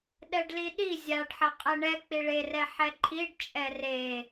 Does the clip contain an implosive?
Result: yes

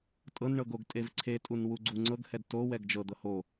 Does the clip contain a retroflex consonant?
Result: yes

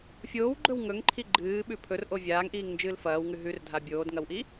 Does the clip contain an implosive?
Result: yes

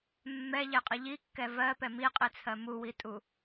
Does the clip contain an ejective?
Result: yes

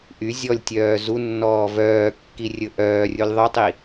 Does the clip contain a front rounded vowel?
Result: yes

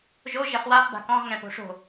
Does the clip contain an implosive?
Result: no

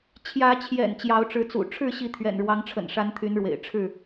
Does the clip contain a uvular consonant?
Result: no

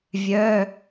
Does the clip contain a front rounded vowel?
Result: yes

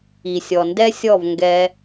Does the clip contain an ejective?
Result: no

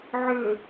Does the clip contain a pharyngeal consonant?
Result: yes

